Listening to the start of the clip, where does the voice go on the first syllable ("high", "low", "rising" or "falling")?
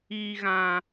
high